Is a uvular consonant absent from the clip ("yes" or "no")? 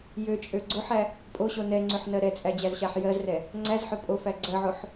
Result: yes